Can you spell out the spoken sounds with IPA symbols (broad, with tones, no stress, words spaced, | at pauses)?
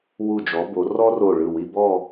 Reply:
wu˧˩d͡ʒɔ˩˧bo˩˧ rɔ˥ro˧˩ ɭɯ˧˩wi˧bɔ˥˧